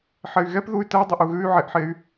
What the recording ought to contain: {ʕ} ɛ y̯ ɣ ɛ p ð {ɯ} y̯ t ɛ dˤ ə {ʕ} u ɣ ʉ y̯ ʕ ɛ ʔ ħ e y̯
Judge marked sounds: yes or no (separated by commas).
no, no, no